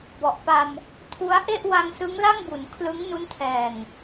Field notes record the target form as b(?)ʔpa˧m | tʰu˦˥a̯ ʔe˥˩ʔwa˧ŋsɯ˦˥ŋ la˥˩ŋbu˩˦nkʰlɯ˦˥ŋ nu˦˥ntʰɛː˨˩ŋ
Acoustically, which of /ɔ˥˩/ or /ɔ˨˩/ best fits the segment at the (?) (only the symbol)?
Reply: ɔ˨˩